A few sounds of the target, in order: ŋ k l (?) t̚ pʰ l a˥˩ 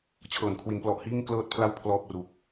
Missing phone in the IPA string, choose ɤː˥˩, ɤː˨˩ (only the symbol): ɤː˥˩